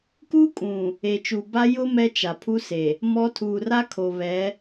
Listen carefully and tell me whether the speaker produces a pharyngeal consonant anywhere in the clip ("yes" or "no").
no